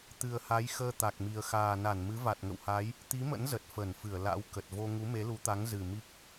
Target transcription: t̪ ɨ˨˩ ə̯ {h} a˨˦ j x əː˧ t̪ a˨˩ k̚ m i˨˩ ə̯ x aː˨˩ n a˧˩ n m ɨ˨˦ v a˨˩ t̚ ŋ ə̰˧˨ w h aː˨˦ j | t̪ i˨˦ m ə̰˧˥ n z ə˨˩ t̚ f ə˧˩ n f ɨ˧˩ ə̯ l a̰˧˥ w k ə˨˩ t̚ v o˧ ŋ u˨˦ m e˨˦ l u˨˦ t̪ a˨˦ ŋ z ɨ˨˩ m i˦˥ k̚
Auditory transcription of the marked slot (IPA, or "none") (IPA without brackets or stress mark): h